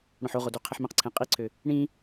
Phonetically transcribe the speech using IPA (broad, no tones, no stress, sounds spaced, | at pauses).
ɽ õ ħ o ʁ o d u qʰ e ħ m ẽ q ǀʰ ẽ qʼ i ǀʰ ø | ɳ ĩ